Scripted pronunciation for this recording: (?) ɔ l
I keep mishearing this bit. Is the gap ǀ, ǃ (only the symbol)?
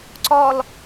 ǀ